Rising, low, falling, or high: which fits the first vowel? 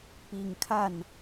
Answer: low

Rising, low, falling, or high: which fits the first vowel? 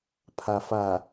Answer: low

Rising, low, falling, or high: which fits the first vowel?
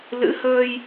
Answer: rising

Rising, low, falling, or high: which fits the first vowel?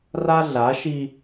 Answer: high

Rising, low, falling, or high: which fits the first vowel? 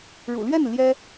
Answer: low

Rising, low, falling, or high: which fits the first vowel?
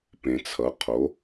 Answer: low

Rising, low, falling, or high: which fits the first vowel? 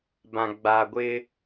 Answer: low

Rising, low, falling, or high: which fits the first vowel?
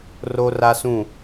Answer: high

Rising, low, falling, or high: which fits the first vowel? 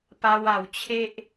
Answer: high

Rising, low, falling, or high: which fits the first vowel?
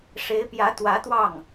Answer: rising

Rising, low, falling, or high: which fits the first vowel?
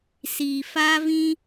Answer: low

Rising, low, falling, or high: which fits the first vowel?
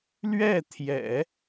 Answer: falling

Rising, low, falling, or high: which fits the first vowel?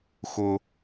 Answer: high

